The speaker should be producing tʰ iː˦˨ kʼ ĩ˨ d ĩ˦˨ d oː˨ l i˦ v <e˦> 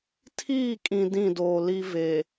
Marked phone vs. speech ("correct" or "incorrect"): incorrect